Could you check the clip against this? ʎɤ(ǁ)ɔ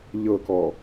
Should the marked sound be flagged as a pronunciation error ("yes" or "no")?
yes